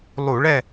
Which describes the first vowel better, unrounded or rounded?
rounded